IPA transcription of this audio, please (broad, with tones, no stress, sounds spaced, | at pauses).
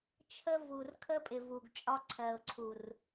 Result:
t͡ʃʰ ə˦ v u˨ r kʰ ə˦ pʼ ɪ˨ v u˨ ɡ t͡ʃʼ ɒ˦ ǀʰ ɜ˨ ʊ̯ ǀʰ u˨ r